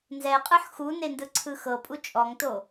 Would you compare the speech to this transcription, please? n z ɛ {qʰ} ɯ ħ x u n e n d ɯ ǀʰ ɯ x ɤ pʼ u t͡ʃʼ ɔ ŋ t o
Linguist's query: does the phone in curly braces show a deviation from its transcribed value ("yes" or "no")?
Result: yes